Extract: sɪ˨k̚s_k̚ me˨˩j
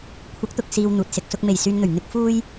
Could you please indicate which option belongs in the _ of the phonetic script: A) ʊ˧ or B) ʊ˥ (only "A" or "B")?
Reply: A